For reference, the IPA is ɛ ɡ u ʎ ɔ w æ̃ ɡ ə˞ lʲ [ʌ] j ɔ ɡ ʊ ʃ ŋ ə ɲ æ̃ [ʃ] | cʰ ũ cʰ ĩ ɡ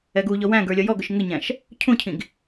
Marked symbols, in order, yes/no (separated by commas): yes, yes